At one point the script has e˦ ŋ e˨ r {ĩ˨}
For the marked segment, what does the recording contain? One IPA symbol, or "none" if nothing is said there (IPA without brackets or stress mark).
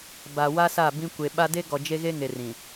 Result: ĩ˨